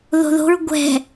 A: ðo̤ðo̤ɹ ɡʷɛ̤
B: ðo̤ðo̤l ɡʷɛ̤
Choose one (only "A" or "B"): A